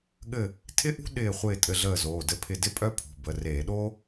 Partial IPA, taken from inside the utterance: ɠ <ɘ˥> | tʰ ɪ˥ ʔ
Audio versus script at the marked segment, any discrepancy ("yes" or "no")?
yes